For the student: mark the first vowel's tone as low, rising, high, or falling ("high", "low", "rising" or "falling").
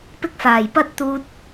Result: high